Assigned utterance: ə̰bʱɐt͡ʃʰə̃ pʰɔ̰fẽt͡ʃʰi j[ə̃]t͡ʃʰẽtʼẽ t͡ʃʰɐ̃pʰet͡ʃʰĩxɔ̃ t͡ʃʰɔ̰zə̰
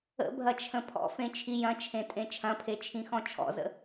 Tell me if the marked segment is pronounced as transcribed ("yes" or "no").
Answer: no